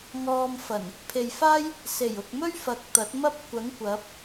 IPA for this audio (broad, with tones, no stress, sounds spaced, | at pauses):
ŋ ɔː˧ m f ɐ˨˩ n | pʰ e˨ j f aː˥ j | s e˨˩ j ʊ˨ k̚ m ɵ˥ ɥ f ɐ˨ k̚ t̪ ɐ˨˥ t̚ m ɐ˥ p̚ kʷ ɐ˨˥ ŋ kʷ ɐ˨˥ p̚